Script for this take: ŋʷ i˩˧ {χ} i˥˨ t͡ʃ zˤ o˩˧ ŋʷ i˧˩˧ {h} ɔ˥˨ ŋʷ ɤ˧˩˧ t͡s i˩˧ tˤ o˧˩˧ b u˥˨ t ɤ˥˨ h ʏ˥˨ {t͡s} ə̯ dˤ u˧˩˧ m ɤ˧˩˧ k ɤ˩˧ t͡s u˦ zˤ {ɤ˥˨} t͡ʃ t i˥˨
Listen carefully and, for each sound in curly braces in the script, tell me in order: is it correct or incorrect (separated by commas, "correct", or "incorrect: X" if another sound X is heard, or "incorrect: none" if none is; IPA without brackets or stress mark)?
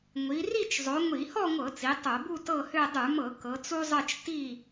incorrect: r, correct, incorrect: none, correct